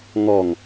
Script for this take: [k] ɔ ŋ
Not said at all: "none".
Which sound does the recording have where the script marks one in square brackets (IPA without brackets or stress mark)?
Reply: ŋ